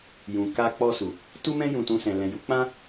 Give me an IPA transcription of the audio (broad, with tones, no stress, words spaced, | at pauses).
jũ˨ ka˧k͡pɔ˧su˨ | tu˦mɛ̃˦ jũ˧tũ˧sɛ̃˨ lɛ̃˨ju˨˦k͡pã˦